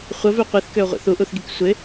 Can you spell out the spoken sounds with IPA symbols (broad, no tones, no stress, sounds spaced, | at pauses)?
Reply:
χʷ ə v ø qʷ i θ k ø ʊ̯ ʁʷ ḭ θ u ʔ u θ ɡ i k sʷ ɪ